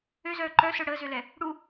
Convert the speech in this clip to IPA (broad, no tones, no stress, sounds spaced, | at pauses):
ø z œː ǃ œ s œ ɽ əː z ø l ɛ | ɽ u